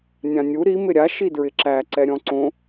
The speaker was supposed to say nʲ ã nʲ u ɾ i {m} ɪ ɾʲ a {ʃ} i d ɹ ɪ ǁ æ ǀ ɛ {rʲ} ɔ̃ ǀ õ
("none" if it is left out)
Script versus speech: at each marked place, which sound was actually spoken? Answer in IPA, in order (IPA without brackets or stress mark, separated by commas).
m, ʃ, ɾʲ